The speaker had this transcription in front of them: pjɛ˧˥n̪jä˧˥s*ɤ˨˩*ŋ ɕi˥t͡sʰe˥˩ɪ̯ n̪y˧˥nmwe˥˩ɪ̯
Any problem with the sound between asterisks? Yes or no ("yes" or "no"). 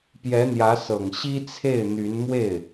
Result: no